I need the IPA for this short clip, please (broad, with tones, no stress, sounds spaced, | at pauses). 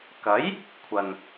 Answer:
k ɐ˨˥ j | kʷʰ ɐ˨ n